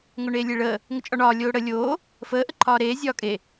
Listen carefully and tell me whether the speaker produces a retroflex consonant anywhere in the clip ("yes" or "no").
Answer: yes